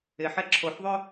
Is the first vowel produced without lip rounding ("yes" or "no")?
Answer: yes